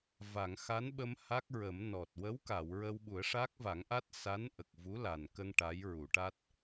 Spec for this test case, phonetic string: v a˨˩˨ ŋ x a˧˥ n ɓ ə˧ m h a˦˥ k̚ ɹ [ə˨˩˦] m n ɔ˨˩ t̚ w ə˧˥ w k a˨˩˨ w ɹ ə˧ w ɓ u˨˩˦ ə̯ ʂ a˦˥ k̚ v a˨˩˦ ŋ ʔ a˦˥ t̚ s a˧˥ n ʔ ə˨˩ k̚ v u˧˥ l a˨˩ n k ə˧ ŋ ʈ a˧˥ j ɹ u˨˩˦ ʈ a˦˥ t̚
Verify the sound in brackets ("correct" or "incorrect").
correct